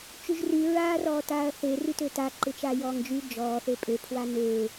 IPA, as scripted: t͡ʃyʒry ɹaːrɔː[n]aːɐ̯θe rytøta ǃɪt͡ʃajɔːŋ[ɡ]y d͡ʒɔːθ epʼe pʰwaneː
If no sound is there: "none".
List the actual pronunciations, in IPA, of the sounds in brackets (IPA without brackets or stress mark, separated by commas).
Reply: t, d͡ʒ